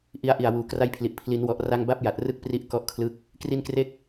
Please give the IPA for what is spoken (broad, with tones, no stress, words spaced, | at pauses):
ʔi˧a̯ʔi˨˩a̯ wuː˩˦kra˦˥jpʰli˨˩ʔ pʰli˩˦nwɔ˨˩ʔra˧ŋba˦˥p̚ ja˨˩t̚rɯ˥˩k̚pri˦˥ʔ kɔ˥˩ʔkʰlɯ˥˩k̚ | kri˧nkre˦˥k̚